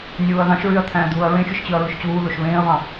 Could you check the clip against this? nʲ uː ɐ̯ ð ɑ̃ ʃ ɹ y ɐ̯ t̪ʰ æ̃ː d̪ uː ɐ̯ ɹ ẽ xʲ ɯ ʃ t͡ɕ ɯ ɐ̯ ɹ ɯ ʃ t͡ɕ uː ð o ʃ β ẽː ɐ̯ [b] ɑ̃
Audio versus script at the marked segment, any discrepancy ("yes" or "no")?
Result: yes